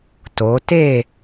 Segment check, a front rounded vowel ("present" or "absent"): absent